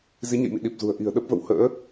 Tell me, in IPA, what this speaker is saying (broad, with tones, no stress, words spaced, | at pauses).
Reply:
zi˨˦ɲə̰˧˨jmḭ˧˨ ɗi˨˩p̚zṳ˨˩ə̯ ʔi̤˨˩ə̯ ɗə˦˥p̚və̰˧˨w hə̰ː˧˥